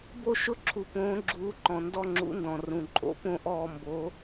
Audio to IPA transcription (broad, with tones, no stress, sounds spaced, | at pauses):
b o˥˧ ʃ ʊ˧˥ ǁʰ u˨ p õː˧˥ ɡ͡ǁ uː˧˥ ǃ ɔ̃˨ n d ɔ˥˧ ŋ͡ǁ ṵ˧˥ n d ɔ̃˨ r ũ˨ ǃʼ o̰˧˥ p õ˥˧ ʔ ɔː˥˧ m b o˧˥